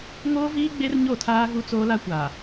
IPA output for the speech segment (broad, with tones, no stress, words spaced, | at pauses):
ŋoː˦viː˦ ɡ͡be˦rɲo˦˨tʰaː˦ ɣu˦t͡soː˦la˦ kʷa˨